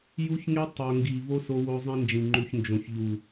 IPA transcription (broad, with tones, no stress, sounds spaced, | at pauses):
j u˦ ç ŋ e˦ tˤ o˨ ŋ ɡ i˨ v o˦ s o˧ w o˧ zˤ ẽ˧ n d͡ʒ ĩ˨ ŋ͡ǃ u˨ ç n d͡ʒ õ˨ ç ʎ u˨